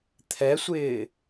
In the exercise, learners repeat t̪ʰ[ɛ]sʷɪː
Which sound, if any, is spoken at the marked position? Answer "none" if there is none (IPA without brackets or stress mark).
ɛ